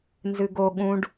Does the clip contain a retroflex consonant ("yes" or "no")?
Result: yes